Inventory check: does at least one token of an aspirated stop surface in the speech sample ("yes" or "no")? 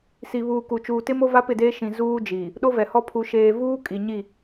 yes